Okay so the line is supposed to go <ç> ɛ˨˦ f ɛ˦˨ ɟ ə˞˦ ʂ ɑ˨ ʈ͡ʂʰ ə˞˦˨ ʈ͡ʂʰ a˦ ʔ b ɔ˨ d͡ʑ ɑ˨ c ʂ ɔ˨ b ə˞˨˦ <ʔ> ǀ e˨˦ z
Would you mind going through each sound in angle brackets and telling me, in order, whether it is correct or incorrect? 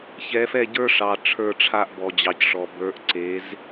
correct, correct

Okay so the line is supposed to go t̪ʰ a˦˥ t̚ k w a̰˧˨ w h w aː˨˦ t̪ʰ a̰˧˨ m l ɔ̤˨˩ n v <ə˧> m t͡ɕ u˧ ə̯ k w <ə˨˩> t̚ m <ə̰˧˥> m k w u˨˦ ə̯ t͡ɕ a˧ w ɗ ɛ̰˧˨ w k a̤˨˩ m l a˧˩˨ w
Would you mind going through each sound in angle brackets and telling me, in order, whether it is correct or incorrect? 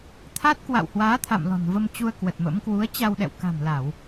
correct, correct, correct

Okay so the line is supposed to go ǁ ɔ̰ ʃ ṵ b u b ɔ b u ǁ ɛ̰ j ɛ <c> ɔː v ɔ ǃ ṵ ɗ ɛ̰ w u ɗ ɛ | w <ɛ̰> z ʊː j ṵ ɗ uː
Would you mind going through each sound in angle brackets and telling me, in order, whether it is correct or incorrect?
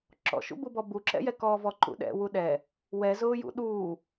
incorrect, incorrect

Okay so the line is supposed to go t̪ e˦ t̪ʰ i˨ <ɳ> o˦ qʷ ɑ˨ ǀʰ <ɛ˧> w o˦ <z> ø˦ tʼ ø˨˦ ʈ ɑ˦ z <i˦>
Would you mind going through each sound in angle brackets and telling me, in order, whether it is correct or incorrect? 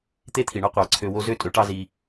correct, incorrect, correct, incorrect

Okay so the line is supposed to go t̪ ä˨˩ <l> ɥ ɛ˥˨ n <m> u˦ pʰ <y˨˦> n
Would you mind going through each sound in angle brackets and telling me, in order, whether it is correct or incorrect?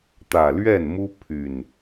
correct, correct, incorrect

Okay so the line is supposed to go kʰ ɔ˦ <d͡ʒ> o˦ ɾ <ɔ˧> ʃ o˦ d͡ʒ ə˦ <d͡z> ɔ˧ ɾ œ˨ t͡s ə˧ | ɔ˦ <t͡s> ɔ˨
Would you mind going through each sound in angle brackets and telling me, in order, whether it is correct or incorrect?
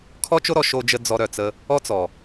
incorrect, correct, correct, correct

